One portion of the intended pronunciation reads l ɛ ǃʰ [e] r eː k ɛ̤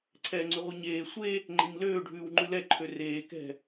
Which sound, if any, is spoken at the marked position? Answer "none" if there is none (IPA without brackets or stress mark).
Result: ø